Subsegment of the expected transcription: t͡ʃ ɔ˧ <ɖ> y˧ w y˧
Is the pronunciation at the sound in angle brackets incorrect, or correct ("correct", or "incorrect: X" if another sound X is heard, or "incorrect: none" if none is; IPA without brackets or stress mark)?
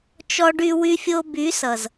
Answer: correct